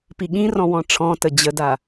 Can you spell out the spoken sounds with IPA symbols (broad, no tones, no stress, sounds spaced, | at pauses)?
p i ɠ ĩ r ɔ̃ w ɔ̃ ʈ͡ʂʰ ɔ̃ t ə d͡ʑ ə d a